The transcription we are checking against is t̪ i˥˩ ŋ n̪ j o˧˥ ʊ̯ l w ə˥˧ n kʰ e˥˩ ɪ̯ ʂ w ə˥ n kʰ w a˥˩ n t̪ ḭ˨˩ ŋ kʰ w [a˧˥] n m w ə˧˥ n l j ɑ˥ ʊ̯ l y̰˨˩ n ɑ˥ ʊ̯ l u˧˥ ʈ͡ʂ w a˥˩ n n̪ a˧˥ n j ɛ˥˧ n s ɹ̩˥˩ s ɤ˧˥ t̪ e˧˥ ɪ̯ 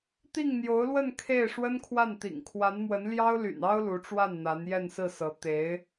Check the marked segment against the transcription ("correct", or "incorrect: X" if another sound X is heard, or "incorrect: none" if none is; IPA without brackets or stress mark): correct